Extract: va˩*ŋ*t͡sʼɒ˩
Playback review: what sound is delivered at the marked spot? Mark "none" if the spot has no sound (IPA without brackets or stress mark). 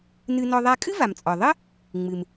m